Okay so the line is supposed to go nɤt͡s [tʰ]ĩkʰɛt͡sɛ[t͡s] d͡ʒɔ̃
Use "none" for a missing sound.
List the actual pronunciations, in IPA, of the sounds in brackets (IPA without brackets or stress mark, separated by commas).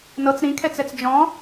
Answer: ɾ, t͡s